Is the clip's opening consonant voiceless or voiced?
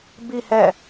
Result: voiced